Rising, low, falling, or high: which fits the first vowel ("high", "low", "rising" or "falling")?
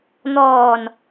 low